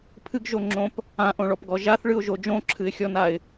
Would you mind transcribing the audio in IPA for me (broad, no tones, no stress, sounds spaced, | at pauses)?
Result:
pʰ ɨ ɡ ʒ o ŋ͡ǁ õ p | ã ʔ õ ɭ ɔ p ɡ ɔ ʒ a θ ɭ ɨ ʊ̯ ʒ o d͡ʒ õ ǁʰ ɨ ɪ̯ xʲ ɔ n a ɪ̯